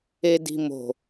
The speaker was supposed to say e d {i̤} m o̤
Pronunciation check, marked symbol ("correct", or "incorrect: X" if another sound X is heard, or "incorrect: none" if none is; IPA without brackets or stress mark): correct